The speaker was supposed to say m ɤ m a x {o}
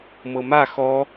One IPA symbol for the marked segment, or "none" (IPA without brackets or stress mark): ɔ